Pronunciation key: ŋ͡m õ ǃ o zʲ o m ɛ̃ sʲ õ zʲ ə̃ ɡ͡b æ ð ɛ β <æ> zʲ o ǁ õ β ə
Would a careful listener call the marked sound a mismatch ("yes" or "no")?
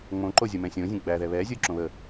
yes